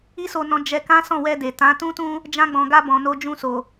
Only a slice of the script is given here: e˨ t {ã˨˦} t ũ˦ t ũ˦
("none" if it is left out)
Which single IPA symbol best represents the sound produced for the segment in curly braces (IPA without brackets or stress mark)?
ã˨˦